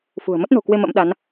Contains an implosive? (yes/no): yes